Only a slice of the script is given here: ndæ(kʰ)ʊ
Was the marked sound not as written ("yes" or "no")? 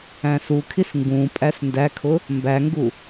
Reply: no